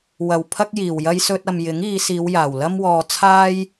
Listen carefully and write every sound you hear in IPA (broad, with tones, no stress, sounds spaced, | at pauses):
w ɐ˨ w pʰ ɐ˥ k̚ j iː˨˩ w j ɐ˥ j s ɵ˥ t̚ ɐ˧ m j ɪ˨˥ ŋ iː˨˧ s iː˨˧ w j aː˨˩ w l ɐ˥ m w ɔː˧ t͡sʰ aː˥ j